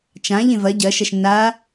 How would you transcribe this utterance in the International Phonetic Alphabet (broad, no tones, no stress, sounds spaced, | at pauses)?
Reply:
t͡ʃ ã ʎ ẽ v ɐ ɟ ɐ ʃ ɐ ʃ nː a